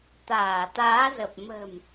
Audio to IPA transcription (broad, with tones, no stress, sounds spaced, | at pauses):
t̪ aː˧˩ t̪ aː˨˦ z ə˨˩ p̚ m ə̤˨˩ m